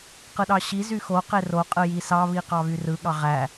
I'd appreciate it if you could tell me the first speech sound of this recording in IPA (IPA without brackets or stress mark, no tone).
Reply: q